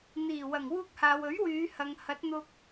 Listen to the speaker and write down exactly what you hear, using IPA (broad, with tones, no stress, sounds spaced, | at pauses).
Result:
n̪ iː˨˩ w ɐ˨˩ ŋ w uː˧ k̚ h aː˨ w ɵ˨˥ ɥ w yː˨˧ h ɐ˨ ŋ h ɐ˨˥ t̚ n̪ ʊ˧ k̚